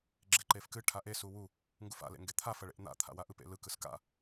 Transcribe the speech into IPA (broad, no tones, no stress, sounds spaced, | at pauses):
ɡ͡ǁ e ǃ e f k ɨ ʈʰ a ʔ e s u w u | ŋ ɡ u f a̰ l ḛ ŋ ɡ e t̪ʰ a f ɐ ɭ ḛ ʔ n̪ a̰ t̪ʰ a̰ w a ʔ ɯ p ḛ l ɯ k ɯ s k a̰